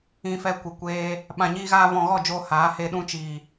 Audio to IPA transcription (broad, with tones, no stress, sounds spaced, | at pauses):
ĩ˧ f ɛ˧ kʷ ɨ˨ kʷ eː˦ | ɓ ã˧ ɲ iː˦ ɣ aː˦ v ɔ̃˧ ɣ ɔ˦˨ d͡ʒ oː˧ h aː˨˦ h e˧ ɗ ũ˧ t͡ʃ iː˨